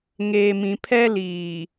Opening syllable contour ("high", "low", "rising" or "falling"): low